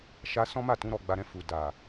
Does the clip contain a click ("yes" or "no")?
no